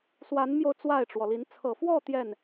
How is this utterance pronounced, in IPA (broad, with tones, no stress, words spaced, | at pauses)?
swa˧˥nmjo˧ʊ̯ t͡swa˥˩ɪ̯ʈ͡ʂwɔ˩li˧˥n t͡sʰɤ˨˩fwɔ˥˧ t̪jɛ˥˩n